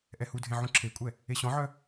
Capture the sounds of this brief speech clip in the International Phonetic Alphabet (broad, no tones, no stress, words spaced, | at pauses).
ʔɛhudʱẽ ʕũǁʰekʷʼɛ | eɕɔ̃ʕœ